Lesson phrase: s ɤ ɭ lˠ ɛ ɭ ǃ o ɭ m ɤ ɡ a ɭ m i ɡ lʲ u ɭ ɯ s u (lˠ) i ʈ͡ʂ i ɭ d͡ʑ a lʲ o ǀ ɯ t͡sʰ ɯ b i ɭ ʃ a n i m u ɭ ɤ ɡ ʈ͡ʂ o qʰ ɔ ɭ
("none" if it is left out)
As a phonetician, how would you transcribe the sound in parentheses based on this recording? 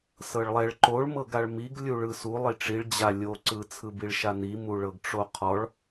lˠ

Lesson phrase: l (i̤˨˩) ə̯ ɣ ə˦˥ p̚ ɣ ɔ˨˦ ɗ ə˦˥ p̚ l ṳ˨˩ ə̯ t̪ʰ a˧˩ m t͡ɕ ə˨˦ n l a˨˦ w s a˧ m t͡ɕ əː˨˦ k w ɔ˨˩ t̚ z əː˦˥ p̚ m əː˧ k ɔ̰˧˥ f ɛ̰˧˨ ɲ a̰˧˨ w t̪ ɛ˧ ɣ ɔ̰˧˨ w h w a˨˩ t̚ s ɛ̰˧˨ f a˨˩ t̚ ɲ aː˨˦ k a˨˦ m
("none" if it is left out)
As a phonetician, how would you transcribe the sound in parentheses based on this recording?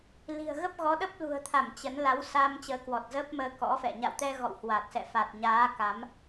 i̤˨˩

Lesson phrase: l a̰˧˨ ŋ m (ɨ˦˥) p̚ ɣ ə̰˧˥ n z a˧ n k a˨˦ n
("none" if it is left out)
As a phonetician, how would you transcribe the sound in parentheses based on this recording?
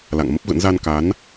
ə˦˥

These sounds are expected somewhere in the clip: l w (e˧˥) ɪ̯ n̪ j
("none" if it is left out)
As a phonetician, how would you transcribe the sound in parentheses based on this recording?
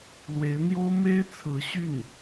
e˧˥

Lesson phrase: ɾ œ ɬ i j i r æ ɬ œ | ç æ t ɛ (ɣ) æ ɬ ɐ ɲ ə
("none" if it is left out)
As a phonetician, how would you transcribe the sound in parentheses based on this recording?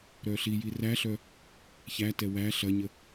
w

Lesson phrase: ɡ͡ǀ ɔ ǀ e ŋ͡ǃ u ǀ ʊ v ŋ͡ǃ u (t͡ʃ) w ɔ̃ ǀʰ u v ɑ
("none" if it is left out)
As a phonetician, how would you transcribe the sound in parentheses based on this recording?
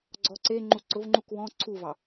k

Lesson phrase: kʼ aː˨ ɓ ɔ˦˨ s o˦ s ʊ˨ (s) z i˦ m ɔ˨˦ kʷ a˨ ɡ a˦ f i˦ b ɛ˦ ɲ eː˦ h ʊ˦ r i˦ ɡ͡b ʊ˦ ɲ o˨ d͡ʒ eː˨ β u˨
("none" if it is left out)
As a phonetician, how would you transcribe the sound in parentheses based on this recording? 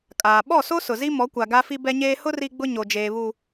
none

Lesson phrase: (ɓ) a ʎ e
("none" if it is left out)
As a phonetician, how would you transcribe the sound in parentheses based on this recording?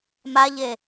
m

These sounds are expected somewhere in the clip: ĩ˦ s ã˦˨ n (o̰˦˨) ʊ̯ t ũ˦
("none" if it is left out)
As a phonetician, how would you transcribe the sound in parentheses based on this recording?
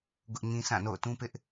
o̰˦˨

